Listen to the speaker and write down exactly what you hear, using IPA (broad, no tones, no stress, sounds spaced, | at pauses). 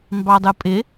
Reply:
m b ɑ dˤ ɯ pʼ ɪ